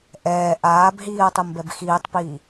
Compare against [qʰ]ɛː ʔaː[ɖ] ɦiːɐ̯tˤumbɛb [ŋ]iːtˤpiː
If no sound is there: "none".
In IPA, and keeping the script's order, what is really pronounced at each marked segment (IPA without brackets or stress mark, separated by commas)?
ʔ, b, x